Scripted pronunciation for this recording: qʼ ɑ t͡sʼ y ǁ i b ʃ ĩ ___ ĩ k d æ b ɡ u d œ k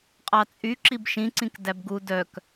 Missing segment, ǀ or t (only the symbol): ǀ